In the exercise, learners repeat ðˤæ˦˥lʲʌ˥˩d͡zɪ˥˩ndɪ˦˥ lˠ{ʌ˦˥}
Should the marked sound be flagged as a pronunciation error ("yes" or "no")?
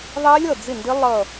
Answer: yes